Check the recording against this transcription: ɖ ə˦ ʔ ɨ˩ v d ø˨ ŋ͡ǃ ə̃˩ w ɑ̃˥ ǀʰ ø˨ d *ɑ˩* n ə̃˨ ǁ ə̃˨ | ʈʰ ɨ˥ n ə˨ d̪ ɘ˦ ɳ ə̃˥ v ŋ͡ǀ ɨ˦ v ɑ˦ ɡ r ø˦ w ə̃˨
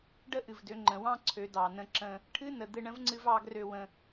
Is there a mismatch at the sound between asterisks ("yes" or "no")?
no